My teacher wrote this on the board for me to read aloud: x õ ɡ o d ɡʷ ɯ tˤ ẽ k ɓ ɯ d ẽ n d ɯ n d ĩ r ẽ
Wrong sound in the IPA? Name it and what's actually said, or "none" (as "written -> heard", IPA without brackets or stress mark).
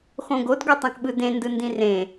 none